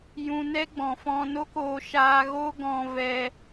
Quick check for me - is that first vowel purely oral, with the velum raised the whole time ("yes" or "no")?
no